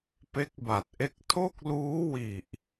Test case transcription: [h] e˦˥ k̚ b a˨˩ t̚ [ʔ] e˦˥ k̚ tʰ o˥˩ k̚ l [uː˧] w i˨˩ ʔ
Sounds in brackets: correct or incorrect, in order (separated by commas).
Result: incorrect, correct, incorrect